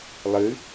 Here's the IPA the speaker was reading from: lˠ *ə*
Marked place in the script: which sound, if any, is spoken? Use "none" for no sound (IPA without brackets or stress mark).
ɨ